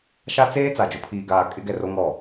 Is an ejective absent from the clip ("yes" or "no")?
no